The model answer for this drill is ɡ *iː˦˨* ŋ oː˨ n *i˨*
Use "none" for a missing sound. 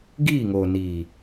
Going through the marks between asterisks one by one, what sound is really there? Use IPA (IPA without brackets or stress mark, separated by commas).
iː˦˨, iː˨